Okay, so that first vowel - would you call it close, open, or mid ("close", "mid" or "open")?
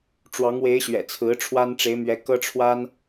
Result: open